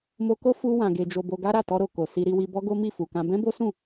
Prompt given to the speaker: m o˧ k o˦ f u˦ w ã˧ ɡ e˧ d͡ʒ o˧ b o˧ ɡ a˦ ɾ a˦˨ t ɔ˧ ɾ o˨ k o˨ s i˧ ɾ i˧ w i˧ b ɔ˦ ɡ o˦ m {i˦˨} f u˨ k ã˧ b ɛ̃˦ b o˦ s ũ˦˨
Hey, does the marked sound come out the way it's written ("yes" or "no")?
yes